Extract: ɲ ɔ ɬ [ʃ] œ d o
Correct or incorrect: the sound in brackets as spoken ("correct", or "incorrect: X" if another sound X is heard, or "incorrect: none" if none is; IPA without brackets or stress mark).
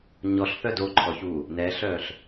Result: incorrect: θ